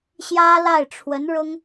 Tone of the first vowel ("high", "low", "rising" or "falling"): high